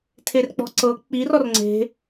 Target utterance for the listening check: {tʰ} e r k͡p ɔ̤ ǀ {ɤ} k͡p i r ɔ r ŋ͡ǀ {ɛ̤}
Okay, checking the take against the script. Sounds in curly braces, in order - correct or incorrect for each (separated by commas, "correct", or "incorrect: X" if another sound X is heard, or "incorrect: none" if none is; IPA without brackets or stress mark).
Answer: correct, correct, incorrect: e̤